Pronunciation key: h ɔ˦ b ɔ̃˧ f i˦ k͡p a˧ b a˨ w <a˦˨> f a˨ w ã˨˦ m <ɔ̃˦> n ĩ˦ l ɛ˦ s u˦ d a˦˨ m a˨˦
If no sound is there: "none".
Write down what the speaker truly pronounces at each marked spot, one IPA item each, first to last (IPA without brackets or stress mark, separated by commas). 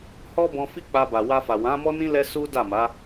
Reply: a˧, ɔ˦